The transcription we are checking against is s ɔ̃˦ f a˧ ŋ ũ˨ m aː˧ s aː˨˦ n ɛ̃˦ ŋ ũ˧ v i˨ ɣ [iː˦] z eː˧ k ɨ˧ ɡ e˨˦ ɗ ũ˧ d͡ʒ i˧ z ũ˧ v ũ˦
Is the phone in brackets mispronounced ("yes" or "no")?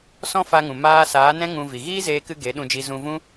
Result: no